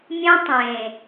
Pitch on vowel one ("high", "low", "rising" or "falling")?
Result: high